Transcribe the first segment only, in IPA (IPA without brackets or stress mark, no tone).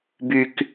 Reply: b